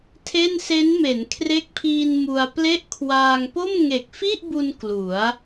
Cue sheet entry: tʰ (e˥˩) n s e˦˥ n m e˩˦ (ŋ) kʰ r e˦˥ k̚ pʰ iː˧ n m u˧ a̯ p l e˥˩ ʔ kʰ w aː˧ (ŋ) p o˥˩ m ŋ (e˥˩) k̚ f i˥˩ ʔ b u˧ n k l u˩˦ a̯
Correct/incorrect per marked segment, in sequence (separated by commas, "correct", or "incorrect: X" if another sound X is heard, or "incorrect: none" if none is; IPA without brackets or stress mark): correct, incorrect: n, correct, incorrect: e˨˩